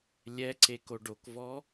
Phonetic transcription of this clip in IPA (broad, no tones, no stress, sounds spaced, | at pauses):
lʲ ɛ ǀ e k o ɖ o k v ɔ